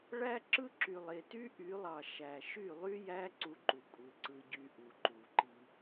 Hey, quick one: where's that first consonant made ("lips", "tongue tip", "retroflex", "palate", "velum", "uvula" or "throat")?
retroflex